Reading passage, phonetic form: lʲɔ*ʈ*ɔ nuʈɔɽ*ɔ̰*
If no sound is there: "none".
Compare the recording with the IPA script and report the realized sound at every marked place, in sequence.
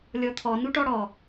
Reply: t̪ʰ, ɔ

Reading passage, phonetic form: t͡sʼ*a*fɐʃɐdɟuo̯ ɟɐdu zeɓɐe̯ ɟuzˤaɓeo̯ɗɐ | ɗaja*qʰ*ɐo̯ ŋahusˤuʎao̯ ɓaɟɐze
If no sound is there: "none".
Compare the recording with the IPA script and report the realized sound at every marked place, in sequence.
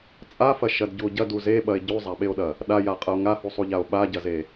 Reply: a, qʼ

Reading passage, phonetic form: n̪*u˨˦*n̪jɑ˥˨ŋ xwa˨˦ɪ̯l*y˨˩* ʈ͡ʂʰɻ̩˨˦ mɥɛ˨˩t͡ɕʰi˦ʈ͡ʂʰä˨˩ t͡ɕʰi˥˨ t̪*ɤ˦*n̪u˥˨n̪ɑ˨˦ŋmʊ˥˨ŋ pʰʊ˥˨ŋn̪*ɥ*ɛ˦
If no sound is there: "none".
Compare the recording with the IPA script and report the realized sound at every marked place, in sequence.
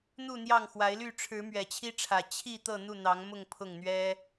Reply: u˥˨, y˥˨, ɤ˥˨, ɥ

